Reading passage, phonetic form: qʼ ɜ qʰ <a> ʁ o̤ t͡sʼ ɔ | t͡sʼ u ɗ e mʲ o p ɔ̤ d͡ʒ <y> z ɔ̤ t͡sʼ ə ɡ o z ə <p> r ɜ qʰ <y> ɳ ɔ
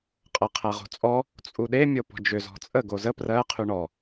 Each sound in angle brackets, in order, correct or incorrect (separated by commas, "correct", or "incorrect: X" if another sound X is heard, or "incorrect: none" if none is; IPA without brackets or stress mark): incorrect: æ, incorrect: ʏ, correct, correct